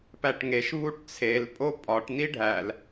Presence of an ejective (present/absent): present